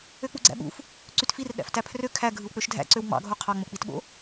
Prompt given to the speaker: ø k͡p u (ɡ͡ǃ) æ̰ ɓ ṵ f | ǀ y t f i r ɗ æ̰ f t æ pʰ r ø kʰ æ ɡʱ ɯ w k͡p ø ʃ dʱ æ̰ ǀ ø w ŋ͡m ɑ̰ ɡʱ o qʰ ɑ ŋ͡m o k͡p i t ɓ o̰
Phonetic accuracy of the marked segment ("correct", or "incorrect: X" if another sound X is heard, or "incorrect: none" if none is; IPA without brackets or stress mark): incorrect: ɡ͡ǀ